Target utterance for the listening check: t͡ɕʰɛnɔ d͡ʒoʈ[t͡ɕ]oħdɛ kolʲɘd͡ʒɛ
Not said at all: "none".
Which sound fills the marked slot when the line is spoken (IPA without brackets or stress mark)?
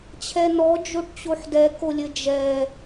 t͡ɕ